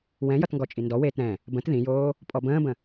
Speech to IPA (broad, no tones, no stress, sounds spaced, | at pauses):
w ɛ̃ j ʌ t ŋ ɡ ɔ t͡ʃʼ i n d ɔ w eː t ɾ ɛ̃ | b ə̃ t ð ĩ j oː | pʼ ɔ b ə̃ː b ə̃